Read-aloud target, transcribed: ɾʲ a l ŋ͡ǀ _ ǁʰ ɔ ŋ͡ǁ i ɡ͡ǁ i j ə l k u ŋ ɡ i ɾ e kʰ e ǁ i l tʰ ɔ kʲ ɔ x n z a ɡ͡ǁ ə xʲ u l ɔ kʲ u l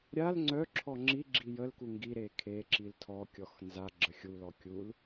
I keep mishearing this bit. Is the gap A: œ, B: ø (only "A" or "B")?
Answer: A